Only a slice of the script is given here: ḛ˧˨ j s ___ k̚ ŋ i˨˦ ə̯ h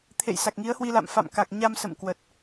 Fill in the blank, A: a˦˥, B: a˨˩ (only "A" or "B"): B